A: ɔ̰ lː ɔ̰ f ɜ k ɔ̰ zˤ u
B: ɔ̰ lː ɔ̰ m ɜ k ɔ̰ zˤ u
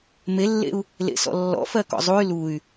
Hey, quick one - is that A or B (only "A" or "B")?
A